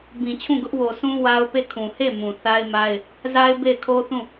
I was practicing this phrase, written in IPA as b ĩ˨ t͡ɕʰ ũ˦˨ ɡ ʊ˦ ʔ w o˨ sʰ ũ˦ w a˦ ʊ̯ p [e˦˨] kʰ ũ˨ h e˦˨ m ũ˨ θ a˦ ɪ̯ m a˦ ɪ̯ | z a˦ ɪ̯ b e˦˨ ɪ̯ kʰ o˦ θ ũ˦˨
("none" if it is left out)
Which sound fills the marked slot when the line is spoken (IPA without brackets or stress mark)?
e˦˨